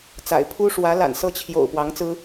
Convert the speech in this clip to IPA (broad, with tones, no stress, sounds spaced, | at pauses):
t͡s a̰˨˩ ɪ̯ pʰ u˥ ʂ w ä˧˥ l a̰˨˩ n s ɤ˥˩ t͡ɕʰ j o̰˨˩ ʊ̯ p w ɑ˧˥ ŋ t͡s ɹ̩˥